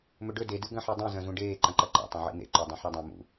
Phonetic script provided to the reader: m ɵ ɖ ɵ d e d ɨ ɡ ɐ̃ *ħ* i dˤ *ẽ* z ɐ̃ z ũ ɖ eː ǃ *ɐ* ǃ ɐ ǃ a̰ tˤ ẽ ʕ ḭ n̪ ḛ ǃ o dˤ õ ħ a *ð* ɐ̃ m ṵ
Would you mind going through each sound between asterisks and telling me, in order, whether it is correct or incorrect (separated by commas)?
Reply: correct, incorrect, incorrect, incorrect